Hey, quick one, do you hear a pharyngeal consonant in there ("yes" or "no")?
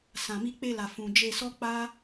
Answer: no